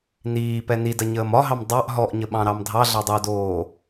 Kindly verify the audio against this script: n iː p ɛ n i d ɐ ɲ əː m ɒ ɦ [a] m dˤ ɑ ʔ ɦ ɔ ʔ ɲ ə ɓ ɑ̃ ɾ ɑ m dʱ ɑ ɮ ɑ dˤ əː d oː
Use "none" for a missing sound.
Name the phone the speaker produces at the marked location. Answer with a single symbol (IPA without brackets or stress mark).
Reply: ɑ